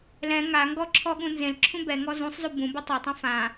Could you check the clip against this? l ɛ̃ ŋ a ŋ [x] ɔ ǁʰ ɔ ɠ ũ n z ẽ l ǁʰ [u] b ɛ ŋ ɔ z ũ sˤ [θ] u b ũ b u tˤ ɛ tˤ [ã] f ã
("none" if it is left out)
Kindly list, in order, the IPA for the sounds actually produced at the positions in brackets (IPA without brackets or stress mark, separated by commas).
ɡ, ũ, z, ã